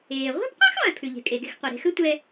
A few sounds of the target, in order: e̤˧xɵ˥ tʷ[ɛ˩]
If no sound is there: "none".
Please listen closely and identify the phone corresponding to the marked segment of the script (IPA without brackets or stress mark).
ɛ˧